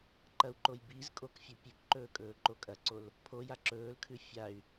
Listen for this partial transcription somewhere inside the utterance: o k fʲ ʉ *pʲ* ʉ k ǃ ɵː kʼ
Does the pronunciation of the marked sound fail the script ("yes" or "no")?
no